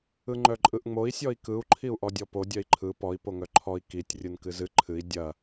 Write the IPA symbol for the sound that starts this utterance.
ɯ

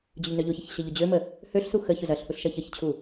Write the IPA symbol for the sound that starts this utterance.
d͡ʑ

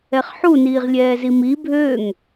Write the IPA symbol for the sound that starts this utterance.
ɛ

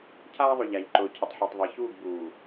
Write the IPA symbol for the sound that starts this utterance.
cʰ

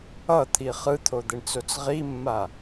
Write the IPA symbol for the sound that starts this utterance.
ʌ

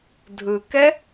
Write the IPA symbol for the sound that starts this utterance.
dʱ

